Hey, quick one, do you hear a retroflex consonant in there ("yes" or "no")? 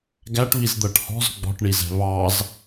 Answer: yes